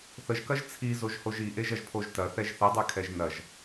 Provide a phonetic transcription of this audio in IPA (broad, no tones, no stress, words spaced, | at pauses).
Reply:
θəʒkɐʒ t͡sʰizoʒhoʒ iʔeʒɐʒpʰoʒ tɐθɛʒ θɛdˤekʰɛʒ nɐʒ